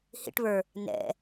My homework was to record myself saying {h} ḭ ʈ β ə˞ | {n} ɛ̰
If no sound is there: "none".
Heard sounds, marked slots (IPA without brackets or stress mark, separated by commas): h, n